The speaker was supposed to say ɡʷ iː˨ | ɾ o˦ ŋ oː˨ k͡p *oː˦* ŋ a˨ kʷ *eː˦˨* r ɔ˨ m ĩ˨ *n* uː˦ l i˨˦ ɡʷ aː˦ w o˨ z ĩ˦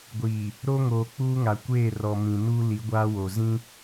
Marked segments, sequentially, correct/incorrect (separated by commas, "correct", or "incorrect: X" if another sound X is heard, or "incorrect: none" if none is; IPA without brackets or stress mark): incorrect: uː˦, correct, correct